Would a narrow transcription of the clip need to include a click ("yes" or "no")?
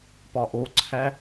yes